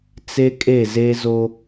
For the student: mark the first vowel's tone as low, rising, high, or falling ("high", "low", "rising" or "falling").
high